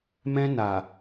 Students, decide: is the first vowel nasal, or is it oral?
nasal